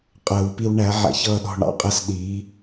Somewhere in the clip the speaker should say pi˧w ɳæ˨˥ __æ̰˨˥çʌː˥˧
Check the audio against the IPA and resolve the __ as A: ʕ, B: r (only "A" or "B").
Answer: A